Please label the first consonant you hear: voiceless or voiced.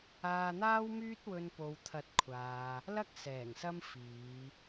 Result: voiced